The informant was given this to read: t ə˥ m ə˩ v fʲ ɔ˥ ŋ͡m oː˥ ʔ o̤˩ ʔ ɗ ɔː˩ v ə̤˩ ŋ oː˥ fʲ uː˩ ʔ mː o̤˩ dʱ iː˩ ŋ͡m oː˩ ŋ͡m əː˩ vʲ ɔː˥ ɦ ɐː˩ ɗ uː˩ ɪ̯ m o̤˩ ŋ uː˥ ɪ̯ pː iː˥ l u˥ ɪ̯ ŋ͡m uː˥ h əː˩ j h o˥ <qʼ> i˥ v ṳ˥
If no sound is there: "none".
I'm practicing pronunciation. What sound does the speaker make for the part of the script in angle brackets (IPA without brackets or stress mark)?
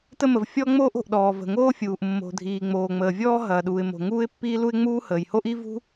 ʔ